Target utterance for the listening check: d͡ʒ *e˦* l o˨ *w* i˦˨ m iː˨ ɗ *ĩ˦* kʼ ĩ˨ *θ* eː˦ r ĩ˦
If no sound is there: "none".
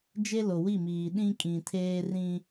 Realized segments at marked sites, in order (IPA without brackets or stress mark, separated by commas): e˦, w, ĩ˦, tʰ